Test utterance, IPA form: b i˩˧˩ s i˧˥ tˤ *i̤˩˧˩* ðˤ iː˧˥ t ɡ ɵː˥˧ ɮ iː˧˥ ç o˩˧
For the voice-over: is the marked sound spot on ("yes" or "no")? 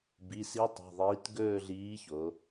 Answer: yes